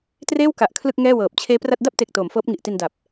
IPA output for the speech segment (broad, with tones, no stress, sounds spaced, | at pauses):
t r eː˥˩ w k a˨˩ ʔ kʰ l ɯ˥˩ k̚ ŋ ɛː˥˩ w ɤː˨˩ p̚ t͡ɕʰ eː˦˥ p r a˥˩ t̚ d a˥˩ p̚ t e˨˩ k̚ t oː˩˦ m f ɤː˦˥ p̚ ŋ i˨˩ ʔ t i˧ n d a˨˩ p̚